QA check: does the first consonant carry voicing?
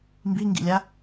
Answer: yes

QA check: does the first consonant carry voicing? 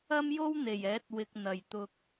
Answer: yes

